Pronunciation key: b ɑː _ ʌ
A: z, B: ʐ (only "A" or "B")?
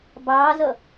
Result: A